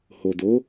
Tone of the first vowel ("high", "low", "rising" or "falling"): low